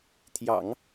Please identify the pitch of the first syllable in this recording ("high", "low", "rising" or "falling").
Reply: low